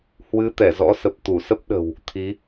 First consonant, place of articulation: glottal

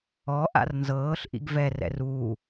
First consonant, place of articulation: glottal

